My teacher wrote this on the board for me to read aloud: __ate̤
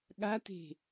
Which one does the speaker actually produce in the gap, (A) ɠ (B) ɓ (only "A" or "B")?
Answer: A